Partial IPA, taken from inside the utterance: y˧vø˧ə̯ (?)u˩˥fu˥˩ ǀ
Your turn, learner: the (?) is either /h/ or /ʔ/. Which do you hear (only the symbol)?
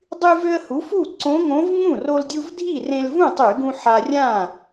h